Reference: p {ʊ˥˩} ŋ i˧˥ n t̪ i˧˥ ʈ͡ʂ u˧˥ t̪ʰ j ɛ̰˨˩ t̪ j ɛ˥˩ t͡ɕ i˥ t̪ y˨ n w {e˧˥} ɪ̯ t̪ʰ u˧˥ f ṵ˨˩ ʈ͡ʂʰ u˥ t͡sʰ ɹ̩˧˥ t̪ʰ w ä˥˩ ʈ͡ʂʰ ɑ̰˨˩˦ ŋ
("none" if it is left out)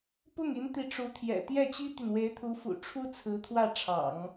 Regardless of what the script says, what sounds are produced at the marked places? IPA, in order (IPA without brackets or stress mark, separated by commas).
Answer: ʊ˥˩, e˧˥